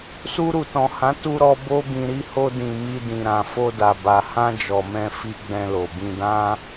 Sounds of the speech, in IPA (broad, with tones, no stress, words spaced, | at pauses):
su˧ɾu˨tɔ̃˨hã˨˦ tu˧ɾɔ˧ bo˦bĩ˧ɾi˦ ho˧dĩ˨ mi˧dĩ˨ ɾã˨ fo˧da˨ba˨ hã˧ d͡ʒɔ˨mɛ̃˧ fi˧ ɡ͡bɛ̃˧lo˨bĩ˧dã˦